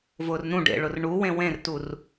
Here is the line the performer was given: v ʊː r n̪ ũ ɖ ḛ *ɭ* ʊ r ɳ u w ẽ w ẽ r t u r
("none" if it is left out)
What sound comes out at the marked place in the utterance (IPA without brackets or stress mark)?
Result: ɭ